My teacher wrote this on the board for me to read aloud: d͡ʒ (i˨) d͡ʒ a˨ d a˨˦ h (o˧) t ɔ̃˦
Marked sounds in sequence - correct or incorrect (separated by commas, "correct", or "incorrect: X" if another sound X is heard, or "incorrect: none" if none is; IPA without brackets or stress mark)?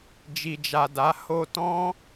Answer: correct, correct